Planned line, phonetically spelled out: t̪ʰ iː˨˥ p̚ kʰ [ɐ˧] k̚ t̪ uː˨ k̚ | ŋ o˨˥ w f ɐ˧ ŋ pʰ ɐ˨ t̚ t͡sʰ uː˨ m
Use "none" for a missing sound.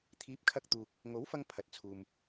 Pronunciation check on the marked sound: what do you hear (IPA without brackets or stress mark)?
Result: ɐ˧